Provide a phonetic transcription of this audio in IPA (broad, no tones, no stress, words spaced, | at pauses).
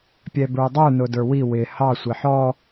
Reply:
pʲɛbə˞dˤə˞ nʊdə˞wi wɪ hɑ sʷɪħɔ